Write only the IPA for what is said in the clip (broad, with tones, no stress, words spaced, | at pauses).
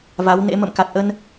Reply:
va˨˦wnḛ˧˥ mə̰˧˨mka˨˩t̚ʔə˧n